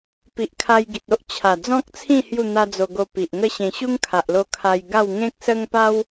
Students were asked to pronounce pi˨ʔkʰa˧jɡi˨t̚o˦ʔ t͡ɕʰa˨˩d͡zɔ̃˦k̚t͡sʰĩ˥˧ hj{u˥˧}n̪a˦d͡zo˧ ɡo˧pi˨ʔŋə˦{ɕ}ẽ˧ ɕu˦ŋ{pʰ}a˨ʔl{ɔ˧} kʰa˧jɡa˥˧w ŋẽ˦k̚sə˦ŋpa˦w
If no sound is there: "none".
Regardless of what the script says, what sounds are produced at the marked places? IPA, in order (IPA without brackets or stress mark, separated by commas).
u˥˧, ɕ, kʰ, o˧